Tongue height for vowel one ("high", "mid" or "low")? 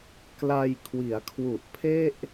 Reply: low